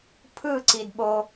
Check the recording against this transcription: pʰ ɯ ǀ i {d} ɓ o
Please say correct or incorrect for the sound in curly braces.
correct